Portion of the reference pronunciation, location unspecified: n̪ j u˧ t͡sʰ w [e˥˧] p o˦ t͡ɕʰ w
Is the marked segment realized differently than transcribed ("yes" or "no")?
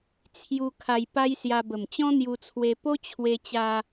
yes